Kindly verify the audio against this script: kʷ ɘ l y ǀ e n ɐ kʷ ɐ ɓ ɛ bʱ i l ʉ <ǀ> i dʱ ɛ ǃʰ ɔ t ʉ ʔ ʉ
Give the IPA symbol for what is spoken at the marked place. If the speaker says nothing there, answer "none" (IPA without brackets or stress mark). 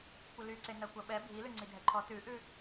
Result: ŋ͡ǀ